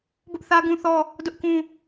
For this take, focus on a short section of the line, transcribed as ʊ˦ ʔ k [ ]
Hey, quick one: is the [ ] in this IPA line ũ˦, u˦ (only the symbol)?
ũ˦